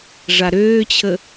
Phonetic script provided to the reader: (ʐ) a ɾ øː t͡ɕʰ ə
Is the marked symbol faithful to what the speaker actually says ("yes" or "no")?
yes